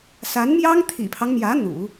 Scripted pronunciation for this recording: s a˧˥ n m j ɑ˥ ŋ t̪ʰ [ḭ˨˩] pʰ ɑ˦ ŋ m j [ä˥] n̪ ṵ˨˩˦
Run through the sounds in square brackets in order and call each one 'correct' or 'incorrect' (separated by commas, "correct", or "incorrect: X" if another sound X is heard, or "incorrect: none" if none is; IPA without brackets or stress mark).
correct, incorrect: ä˧˥